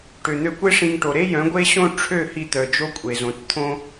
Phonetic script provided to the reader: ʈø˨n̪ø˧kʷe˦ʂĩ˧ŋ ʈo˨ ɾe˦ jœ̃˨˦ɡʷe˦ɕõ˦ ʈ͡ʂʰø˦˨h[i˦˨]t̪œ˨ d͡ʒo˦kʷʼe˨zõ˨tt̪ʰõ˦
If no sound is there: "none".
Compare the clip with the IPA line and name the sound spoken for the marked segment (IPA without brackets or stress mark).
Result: i˧